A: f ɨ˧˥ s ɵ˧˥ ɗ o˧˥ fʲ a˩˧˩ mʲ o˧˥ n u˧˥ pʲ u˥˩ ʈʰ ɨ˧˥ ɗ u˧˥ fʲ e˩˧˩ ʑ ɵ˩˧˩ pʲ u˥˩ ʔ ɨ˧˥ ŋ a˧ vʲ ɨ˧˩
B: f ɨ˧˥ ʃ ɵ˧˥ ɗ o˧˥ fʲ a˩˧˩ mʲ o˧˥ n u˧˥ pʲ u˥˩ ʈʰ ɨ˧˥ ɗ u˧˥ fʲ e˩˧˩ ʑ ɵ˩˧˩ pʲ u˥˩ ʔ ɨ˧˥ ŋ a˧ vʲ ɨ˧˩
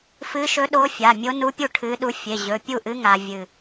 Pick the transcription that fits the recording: B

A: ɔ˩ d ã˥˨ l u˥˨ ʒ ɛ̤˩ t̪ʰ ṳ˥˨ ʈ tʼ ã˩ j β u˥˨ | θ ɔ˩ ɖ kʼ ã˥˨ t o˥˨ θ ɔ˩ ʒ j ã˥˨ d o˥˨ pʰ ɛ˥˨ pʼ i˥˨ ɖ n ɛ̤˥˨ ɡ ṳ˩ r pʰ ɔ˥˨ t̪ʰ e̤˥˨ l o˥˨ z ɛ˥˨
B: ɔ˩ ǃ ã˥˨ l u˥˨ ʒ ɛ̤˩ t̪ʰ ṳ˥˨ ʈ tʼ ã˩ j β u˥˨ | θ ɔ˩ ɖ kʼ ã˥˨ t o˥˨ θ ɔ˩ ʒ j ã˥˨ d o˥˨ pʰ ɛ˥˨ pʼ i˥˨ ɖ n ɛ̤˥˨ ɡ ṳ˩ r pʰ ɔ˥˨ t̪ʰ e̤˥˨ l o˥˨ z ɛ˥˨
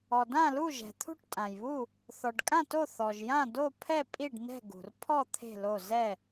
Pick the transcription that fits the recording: A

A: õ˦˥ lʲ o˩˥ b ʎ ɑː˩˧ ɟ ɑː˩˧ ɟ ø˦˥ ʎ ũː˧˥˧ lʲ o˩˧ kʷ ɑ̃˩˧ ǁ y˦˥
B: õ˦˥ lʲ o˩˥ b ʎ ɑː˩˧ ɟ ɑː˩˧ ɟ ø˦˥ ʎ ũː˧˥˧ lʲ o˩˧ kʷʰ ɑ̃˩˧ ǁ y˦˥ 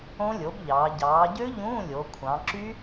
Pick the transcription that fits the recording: B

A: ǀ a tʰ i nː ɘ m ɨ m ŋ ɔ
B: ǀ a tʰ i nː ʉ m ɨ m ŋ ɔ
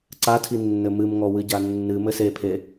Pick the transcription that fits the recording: A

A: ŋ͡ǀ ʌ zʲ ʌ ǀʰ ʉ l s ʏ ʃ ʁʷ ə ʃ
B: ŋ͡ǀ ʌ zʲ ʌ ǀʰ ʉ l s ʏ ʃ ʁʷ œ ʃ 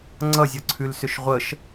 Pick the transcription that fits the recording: A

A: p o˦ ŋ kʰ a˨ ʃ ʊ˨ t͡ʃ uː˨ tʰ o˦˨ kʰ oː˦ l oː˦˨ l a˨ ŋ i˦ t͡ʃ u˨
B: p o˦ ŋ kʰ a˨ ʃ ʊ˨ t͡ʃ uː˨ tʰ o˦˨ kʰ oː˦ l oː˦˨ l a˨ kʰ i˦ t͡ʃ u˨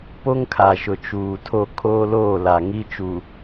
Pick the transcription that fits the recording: A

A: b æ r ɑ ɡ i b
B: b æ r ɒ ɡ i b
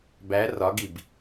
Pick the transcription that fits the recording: B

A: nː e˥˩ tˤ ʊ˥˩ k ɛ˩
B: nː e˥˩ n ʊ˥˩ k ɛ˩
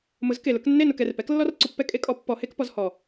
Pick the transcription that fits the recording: B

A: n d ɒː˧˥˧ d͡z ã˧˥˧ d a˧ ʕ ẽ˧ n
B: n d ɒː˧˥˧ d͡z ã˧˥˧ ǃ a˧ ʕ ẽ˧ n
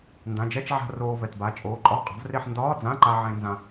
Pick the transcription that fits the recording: B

